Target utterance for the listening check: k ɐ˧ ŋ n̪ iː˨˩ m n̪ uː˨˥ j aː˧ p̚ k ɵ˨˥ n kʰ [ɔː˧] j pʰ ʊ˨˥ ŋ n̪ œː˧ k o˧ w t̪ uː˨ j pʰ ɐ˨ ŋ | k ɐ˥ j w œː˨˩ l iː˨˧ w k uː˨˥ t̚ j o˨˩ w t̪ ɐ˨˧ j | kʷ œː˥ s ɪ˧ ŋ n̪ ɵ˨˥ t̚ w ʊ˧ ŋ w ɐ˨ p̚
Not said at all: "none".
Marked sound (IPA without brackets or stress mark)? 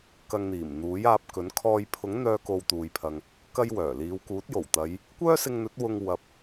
ɔː˧